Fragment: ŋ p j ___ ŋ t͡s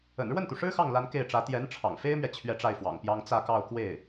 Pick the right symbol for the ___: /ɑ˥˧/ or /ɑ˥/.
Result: ɑ˥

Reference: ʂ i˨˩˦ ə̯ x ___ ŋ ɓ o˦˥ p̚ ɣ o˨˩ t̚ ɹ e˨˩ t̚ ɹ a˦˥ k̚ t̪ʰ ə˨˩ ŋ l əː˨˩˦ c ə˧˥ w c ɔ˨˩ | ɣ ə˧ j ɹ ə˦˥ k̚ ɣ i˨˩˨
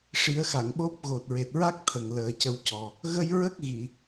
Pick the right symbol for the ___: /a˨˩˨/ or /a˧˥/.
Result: a˨˩˨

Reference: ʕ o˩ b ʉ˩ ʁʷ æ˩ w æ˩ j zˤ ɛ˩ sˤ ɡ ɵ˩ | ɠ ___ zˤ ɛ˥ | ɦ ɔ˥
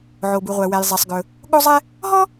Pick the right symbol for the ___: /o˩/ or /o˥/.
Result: o˥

